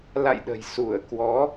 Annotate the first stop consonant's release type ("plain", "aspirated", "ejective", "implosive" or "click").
implosive